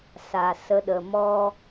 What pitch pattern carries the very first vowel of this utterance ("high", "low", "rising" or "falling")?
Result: low